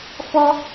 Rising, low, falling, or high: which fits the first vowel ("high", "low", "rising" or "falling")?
high